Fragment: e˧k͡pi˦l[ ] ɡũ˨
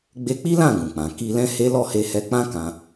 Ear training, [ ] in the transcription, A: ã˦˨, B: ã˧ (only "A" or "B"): A